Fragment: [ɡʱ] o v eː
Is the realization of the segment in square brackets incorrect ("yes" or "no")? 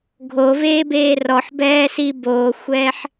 no